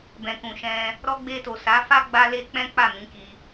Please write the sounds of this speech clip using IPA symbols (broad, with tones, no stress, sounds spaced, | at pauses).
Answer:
b ɛ̃˨ k ũ˨ ʃ ɛ̃˧ | ɾ ɔ˧ ɡ͡b e˧ t o˨ s a˨˦ f a˦ ɡ͡b a˧ l e˧ k͡p ɛ̃˦ k͡p a˦˨ m ĩ˨˦ k i˧